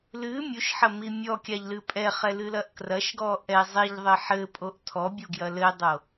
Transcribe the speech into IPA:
l ɨ mʲ u ʃ ħ ɐ m i mʲ ɔ kʲ a ʎ l ɨ pʼ ɛ χ ɛ l ɨ l ɐ ʔ k r ɐ ʃ ɡ ɔ ʔ ɛ zˤ i ʎ ðˤ ɘ ħ ɘ pʼ o ʔ tʰ ɔ bʲ u ɡ j ɐ l ɘ dˤ o

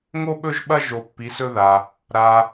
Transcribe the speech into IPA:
ŋ o˥ ɓ ɵ˥ ʒ ɓ ɐ˥ ʒ o˧˥ pː i˧˥ s ɵ˥ ð a˧ | ɾ a˧

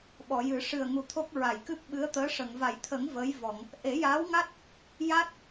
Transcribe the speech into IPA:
ɓ ɔ˨˩˨ j ɨ˨˩˦ ʂ ɨ˨˩ ə̯ ŋ u˨˩ t̪ʰ o˦˥ k̚ ɹ a˨˩˨ j k ɨ˦˥ p̚ ɓ ɨ˧˥ ə̯ t̪ əː˧˥ ʂ ə˨˩˨ ŋ v a˨˩˨ j t̪ʰ ə˨˩˦ ŋ v əː˧˥ j v ɔ˨˩˨ ŋ | ʔ e˨˩˦ j aː˧˥ w ŋ a˦˥ t̚ | j a˦˥ t̚

